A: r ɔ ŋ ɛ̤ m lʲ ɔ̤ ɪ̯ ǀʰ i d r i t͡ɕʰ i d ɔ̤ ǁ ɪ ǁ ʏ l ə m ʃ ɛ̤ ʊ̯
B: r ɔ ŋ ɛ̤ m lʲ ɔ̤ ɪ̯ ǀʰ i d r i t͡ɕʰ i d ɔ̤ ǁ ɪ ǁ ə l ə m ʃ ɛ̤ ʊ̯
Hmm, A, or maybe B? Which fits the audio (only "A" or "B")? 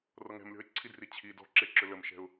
A